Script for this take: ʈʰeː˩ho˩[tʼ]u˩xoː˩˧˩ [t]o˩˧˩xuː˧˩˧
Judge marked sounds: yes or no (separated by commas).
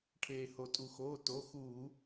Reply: yes, yes